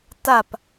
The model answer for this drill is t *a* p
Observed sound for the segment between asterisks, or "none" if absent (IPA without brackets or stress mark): a